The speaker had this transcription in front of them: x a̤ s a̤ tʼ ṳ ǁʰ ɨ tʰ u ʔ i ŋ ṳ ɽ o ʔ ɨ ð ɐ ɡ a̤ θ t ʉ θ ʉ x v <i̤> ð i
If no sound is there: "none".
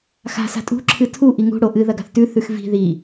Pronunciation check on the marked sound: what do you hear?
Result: i̤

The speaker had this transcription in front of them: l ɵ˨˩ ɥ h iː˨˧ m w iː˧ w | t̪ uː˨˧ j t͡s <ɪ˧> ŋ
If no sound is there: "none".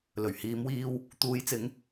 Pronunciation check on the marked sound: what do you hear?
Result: ɪ˨˧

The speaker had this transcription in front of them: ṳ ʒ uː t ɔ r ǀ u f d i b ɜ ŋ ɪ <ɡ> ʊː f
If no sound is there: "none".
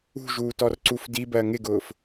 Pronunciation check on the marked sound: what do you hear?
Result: ɡ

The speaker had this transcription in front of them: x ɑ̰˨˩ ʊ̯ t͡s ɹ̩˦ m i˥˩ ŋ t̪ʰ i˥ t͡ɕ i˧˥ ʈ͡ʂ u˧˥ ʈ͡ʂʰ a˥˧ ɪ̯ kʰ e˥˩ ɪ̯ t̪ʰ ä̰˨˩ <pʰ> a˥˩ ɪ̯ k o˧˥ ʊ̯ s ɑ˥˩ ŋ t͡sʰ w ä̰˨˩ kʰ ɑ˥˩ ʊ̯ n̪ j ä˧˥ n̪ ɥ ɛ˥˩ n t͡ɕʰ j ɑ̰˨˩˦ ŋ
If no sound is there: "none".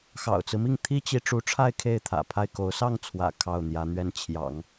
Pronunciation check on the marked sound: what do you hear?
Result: pʰ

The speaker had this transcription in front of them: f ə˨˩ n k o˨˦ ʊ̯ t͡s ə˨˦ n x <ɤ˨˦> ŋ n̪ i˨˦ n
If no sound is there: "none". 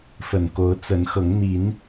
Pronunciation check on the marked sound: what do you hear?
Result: ɤ˨˦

